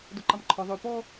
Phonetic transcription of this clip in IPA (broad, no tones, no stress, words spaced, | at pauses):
doǃɑmǃʰɔ ðˤø pɔ